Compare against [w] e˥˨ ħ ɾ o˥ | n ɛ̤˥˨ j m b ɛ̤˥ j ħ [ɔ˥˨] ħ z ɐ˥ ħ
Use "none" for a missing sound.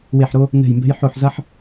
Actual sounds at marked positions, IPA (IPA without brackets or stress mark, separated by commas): w, o˥˨